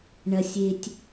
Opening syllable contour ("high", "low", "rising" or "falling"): low